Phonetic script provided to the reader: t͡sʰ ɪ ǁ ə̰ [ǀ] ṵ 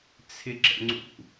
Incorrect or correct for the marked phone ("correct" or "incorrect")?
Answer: incorrect